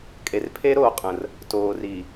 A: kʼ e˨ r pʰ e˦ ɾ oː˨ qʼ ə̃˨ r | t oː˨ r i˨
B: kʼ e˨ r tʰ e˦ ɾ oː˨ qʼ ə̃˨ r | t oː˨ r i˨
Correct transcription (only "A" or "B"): A